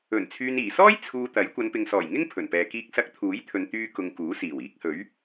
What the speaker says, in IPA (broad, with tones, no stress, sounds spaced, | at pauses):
ɵ˨˩ n t͡sʰ yː˨ n iː˨˩ s ɔː˥ j t͡sʰ uː˧ t̪ ɐ˨˥ j kʷ ɐ˨˧ n p ɪ˨ ŋ s ɔː˨˩ j ŋ ɪ˥ ŋ pʰ ɵ˨˩ n p ɛː˨ k iː˧ k̚ s ɐ˧ k̚ t̪ʰ uː˨˥ j t̪ʰ ɵ˨˧ n t̪ yː˧ k ʊ˨ ŋ k uː˨˥ s iː˨˩ w iː˨˥ k̚ h ɵ˨˥ ɥ